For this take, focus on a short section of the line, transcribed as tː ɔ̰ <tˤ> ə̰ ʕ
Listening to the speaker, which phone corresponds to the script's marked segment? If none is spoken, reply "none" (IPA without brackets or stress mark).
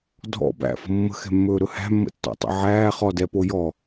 tˤ